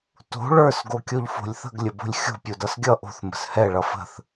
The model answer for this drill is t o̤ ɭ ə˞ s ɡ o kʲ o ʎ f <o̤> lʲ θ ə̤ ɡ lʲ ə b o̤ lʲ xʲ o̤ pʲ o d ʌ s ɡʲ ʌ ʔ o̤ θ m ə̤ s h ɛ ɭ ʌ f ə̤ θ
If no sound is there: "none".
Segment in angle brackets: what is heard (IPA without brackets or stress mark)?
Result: o̤